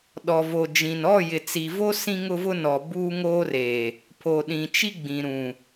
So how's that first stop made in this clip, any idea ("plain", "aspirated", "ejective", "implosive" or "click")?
implosive